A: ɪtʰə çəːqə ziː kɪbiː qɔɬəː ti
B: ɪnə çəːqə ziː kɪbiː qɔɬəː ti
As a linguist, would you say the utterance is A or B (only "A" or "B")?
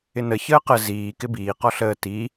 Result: B